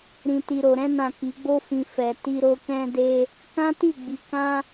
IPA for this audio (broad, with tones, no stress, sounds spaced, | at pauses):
ɾ ĩ˨ t i˨ ɾ o˨ ɾ ɛ̃˧ n ã˨ k i˨˦ ɡ͡b o˦ f ĩ˧ f ɛ˨ t i˧ ɾ o˧ k ɛ̃˦ d e˦ | k ã˦ t i˦˨ ɡ͡b i˨˦ k ã˦